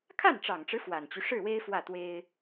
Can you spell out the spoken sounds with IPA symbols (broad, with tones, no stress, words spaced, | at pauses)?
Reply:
kʰa˥˩nʈ͡ʂɑ˨˩ŋʈ͡ʂɻ̩˦ fwa˨˩nt͡ɕy˦ ʂɻ̩˥˩we˥ɪ̯ fwä˥˩t̪we˥ɪ̯